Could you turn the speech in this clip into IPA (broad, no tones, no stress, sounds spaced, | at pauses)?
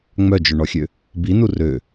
ŋ͡m œ d͡ʒ ɵ ɳ ɔ xʲ ø | b i n u r ø